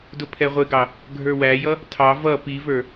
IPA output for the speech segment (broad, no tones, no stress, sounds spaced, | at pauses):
d ʊ pʰ ɛ ʁʷ ɪ ɡ ɑ | ɡʱ ə˞ w æ j ʌ | tʰ ɑ v ʌ p i v ə˞